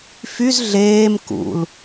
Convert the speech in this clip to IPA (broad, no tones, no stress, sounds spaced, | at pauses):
f y z ɮ eː m k ṵ l